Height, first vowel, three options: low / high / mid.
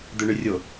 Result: mid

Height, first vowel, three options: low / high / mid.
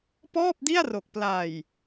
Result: mid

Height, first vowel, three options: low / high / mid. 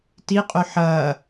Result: high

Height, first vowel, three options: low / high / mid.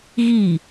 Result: high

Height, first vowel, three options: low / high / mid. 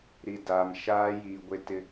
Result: high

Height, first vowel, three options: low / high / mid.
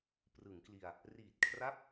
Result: high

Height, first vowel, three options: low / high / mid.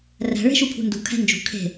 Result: low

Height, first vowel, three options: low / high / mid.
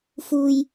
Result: high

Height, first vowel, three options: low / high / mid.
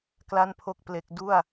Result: low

